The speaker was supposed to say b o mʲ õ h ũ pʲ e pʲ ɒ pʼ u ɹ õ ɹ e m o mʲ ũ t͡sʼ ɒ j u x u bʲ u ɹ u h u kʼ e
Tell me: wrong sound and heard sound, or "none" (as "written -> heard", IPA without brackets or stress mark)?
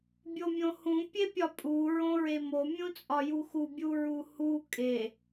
b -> bʲ